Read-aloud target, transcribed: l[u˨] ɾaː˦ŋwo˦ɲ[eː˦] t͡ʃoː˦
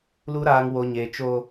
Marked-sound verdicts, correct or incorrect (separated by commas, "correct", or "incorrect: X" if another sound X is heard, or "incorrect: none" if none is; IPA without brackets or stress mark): incorrect: u˦, correct